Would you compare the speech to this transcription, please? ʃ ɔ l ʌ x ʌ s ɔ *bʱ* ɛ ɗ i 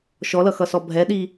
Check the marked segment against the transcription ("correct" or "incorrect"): correct